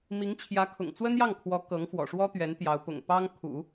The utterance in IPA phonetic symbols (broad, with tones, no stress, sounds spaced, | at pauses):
m i˧˥ ŋ t͡ɕʰ j ä˧˥ kʰ ʊ̰˨˩ ŋ t͡s w ə˥ n j ɑ˥˩ ŋ kʰ w ɔ˧˥ k ɤ˧˥ ŋ f w ɔ̰˨˩ ʂ w ɔ˥ t̪ ɥ ɛ˧˥ n t̪ j ɑ˧˥ ʊ̯ p ʊ̰˨˩ ŋ p ɑ˥ ŋ kʰ ṵ˨˩˦